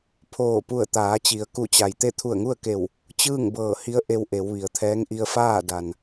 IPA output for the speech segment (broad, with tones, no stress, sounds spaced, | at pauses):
pʰ oː˧˩ p u˧˩ ə̯ t̪ aː˩˧ t͡ɕ i˩˧ ə̯ k u˧˩ t͡ɕ a˩ j t̪ e˥˨ t̪ʰ u˧˩ ə̯ ŋ u˥˨ ə̯ k e˧˩ w | t͡ɕ ɯː˥˨ ŋ b ɤː˧˩ h i˧˥ ə̯ ʔ e˧ w ʔ e˩˧ w ʋ i˩˧ ə̯ t̪ʰ ɛː˧˥ ŋ ʔ i˧ ə̯ f aː˥˨ d a˩ n